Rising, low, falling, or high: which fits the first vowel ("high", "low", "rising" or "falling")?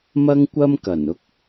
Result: high